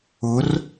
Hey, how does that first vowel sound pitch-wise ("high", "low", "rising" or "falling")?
rising